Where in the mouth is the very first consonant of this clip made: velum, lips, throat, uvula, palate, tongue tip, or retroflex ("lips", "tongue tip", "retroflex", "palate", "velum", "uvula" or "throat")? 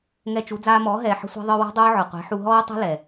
velum